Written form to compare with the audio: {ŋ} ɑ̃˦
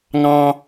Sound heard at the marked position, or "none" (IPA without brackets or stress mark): ŋ